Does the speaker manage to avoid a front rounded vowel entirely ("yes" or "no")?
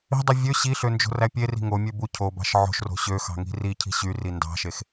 no